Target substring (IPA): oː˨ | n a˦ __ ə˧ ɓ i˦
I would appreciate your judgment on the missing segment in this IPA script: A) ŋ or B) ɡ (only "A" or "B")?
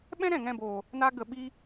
B